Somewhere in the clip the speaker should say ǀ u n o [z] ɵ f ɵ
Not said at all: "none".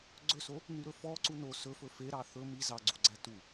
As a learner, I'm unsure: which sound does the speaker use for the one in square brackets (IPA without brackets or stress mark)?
s